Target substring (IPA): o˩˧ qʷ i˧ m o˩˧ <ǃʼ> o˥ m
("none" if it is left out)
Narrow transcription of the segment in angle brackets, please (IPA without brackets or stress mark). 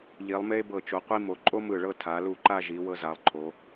ǃʼ